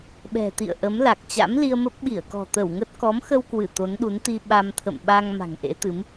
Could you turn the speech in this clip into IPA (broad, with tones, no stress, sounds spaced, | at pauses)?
ɓ ɛ̤˨˩ t̪ ḭ˧˨ ə̯ ʔ ə˨˦ m l a˨˩ k̚ t͡ɕ a̰˧˥ m l i˧ ə̯ m ə˦˥ p̚ ɓ i˧˩ ə̯ k ɔ̤˨˩ t̪ ə˧˩ w ŋ ə˦˥ t̚ k ɔ˨˦ m x ə˧ w k w ɨ˧˩ t̪ o˨˦ n ɗ u˨˦ n t̪ i˧ ɓ a˧ m t̪ʰ ə̰˧˨ m ɓ a˧ ŋ m a̤˨˩ ŋ ʔ ḛ˧˥ t̪ ɨ˨˦ m